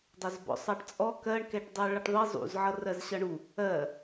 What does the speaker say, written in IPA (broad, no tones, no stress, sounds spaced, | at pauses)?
dˤ ʌ z b ɔ̰ sˤ ɑ ʈ t͡sʼ ɔ k ɜ ɳ k ɛ ʈ dˤ ɜ ɭ ʌ ʈ ðˤ i zˤ ṵ z ʕ ʌ r ɜ z ɕ ʌ ɳ u | ɜ